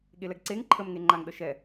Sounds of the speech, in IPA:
ɠ e l ɛ ɡ ǀ e ŋ ǃʰ ə m ŋ e ŋ͡ǃ a ŋ ɗ ə ʃ ɛ

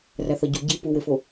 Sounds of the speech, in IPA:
r æ θ ɒ ɟ u ɟ i p u w e f o

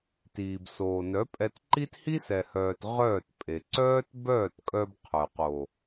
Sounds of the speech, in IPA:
t iː˨ b s oː˨ n œ˨˦ pʼ ɛ˧ t ǃ i˦ t h i˦ s ɛ˨ h œː˨ t ʁ œː˦˨ t pʼ e˨ ǀ œː˦ t b œː˦˨ t kʼ œ˧ b qʰ œ˨ q o˨

